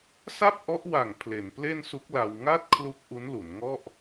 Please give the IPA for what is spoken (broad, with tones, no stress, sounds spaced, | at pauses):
s a˥˩ p̚ ʔ ɔ˦˥ ʔ w a˨˩ ŋ pʰ l e˩˦ n p l e˥˩ n s u˦˥ k̚ l a˧ w ŋ a˥˩ t̚ kʰ l u˦˥ k̚ ʔ u˦˥ n l u˩˦ n ŋ ɔ˥˩ ʔ